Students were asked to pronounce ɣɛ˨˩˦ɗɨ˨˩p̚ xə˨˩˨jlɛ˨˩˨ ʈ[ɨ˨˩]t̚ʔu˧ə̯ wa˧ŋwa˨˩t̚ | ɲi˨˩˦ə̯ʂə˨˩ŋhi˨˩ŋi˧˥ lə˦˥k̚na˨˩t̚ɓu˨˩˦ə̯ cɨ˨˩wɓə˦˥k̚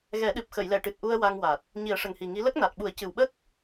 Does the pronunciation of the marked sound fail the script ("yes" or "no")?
no